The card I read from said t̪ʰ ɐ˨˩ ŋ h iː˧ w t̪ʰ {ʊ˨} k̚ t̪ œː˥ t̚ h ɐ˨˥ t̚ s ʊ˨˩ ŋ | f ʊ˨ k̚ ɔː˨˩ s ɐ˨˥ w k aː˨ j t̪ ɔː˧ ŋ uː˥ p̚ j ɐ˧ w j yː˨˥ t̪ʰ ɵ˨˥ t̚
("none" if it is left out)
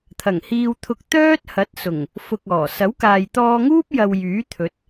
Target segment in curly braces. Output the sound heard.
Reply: ʊ˧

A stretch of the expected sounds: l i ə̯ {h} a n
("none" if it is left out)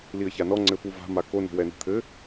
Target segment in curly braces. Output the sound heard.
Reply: ç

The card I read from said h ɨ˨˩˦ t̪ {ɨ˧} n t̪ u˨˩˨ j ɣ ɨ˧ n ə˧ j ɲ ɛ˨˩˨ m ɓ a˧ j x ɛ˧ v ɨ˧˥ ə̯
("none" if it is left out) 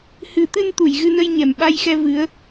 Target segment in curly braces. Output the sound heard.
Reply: ɨ˧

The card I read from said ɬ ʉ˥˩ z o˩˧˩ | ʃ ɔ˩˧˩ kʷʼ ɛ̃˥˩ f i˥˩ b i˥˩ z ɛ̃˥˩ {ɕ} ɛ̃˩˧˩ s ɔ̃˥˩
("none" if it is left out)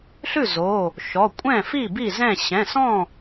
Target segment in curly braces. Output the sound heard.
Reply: ɕ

